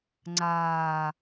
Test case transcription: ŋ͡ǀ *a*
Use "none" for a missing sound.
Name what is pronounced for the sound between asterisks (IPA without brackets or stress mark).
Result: aː